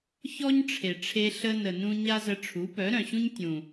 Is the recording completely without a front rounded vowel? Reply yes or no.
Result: no